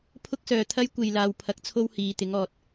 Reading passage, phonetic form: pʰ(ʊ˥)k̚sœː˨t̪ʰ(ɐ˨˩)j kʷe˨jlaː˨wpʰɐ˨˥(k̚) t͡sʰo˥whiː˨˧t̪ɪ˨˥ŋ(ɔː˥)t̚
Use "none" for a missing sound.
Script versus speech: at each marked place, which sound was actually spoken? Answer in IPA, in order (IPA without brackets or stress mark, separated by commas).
ʊ˥, ɐ˥, k̚, ɔː˨